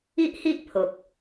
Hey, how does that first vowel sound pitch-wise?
high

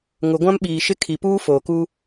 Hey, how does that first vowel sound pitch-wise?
low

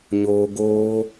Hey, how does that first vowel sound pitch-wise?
low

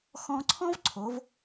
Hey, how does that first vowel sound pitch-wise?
high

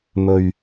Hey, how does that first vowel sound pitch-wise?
low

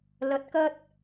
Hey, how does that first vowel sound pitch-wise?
rising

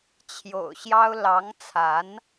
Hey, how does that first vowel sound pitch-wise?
low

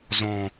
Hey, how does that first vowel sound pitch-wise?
low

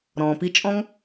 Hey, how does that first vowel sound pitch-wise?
low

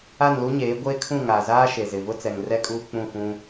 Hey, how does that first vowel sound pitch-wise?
falling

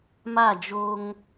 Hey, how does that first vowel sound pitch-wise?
falling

